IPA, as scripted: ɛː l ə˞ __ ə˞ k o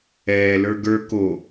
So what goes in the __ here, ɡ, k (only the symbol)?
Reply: ɡ